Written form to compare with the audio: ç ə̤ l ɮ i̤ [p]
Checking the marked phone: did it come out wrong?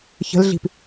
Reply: no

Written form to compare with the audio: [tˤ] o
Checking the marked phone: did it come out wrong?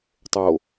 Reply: no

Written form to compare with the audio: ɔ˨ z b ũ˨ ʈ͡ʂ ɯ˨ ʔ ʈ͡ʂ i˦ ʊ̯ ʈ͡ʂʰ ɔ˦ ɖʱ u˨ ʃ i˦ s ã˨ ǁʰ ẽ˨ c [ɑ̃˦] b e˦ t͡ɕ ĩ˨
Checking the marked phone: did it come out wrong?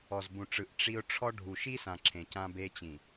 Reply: yes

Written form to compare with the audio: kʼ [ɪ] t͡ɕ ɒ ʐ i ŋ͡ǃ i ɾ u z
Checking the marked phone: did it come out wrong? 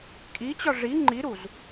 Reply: yes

